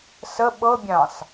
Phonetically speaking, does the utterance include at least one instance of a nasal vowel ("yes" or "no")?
yes